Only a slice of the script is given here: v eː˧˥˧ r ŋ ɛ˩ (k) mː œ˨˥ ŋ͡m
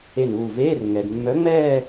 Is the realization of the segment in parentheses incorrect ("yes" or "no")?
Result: yes